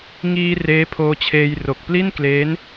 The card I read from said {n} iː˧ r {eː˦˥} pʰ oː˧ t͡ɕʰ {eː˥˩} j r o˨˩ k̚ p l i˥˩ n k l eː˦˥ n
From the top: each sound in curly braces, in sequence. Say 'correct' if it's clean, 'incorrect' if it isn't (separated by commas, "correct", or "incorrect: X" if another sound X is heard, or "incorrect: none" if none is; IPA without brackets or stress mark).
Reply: incorrect: ŋ, correct, incorrect: eː˧